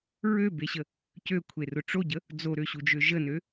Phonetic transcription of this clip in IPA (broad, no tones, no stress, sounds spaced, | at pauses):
ɹ ø b e ɕ ə | c ø kʷʰ e r ʊ ʈ͡ʂ o ɟ ə | d͡z o ɾ ø ɕ u d͡ʒ ø ʒ ə n ø